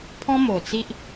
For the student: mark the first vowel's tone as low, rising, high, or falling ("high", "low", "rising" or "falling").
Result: high